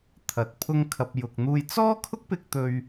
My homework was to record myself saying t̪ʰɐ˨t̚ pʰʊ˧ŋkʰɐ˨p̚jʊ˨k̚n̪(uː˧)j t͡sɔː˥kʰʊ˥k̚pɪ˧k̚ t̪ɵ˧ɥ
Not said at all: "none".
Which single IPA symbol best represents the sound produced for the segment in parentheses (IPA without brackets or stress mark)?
uː˧